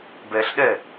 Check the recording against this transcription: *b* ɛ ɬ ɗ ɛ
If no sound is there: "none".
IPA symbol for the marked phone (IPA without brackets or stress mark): b